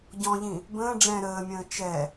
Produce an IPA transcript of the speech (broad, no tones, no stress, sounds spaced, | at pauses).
ɟ ɔ̃ ʎ ĩ | b ə̃ː ɖ͡ʐ ɛ̃ ɾ əː mʲ ə̃ː t͡ʃ ɛ